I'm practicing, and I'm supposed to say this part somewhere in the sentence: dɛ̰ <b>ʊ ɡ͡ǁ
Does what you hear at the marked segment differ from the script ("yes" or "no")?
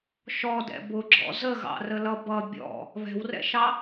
no